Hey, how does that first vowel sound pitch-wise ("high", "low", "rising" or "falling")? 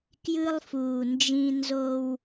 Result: high